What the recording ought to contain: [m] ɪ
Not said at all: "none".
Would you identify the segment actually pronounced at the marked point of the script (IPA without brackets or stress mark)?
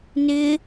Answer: n